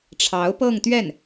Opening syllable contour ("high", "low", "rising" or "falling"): rising